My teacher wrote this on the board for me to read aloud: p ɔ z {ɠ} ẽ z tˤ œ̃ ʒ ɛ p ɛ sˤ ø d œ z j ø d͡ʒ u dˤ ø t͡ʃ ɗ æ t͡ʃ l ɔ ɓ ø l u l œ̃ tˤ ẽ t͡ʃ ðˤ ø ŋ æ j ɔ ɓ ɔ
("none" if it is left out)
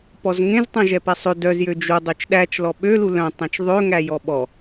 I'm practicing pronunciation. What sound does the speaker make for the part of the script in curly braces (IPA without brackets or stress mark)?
ŋ